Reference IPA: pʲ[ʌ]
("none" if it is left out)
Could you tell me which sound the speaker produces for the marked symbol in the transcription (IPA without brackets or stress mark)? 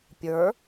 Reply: ə˞